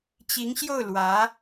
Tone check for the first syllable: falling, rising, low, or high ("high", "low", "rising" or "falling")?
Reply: rising